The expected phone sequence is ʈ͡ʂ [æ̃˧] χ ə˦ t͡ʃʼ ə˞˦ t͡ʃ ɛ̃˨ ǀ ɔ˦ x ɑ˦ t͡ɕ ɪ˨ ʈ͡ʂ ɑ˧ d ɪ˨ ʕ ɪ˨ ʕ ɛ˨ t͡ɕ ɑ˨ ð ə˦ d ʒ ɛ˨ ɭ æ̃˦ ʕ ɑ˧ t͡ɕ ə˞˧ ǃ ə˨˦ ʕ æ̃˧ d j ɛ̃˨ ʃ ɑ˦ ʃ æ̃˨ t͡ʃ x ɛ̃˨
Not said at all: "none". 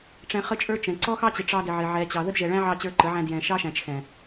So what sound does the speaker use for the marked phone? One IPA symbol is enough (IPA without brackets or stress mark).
ɛ̃˧